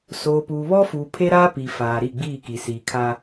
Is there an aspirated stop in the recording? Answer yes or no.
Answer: yes